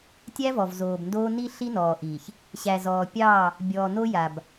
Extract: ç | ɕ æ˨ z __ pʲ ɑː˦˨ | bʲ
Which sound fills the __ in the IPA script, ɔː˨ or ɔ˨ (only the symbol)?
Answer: ɔː˨